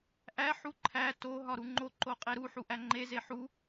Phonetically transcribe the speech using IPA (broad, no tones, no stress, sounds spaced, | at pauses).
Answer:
ʔ æ ħ u ǃʰ æ t o ɦ ɒ ɾ u ŋ͡ǃ o ǃ o qʼ e ɾ u ħ u ʔ æ ŋ͡ǃ e z e ħ u